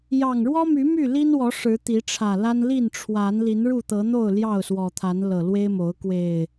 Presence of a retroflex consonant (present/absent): present